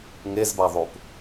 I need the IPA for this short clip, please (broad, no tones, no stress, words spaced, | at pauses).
ŋezbaðˤup